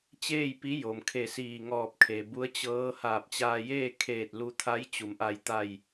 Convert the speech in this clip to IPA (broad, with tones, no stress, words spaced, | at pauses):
t͡ɕeː˥˨jpi˧˥jo˩m kʰe˧˩siː˧˩ŋɔː˧˩p̚kʰe˩ bu˧˥ə̯t͡ɕɤː˧˥ haː˧˩p̚t͡ɕaː˧jeː˥˨kʰeː˧˩t̚ lu˧t̪ʰa˧˥j t͡ɕu˩˧mʔa˧j t̪a˧˩j